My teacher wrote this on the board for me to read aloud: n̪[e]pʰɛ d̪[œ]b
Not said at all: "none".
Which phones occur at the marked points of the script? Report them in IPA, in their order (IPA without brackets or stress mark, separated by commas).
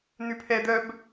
y, œ